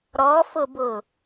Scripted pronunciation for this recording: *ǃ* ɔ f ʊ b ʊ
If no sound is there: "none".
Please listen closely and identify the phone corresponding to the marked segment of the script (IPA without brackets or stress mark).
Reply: ɾ